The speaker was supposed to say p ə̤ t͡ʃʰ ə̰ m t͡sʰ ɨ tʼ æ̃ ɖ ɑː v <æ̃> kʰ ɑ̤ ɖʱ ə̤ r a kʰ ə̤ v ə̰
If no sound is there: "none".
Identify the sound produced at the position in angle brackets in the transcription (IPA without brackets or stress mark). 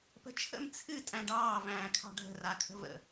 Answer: æ̃ː